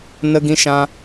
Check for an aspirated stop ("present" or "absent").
absent